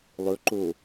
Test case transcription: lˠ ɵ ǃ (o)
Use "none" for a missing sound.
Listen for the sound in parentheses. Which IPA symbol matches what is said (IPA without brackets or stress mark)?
o